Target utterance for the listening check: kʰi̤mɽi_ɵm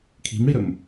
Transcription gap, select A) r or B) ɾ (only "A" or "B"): B